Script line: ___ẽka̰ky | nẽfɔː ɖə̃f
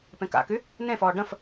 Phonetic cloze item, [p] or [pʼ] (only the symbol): p